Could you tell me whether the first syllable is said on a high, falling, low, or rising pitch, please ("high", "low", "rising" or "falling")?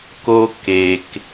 high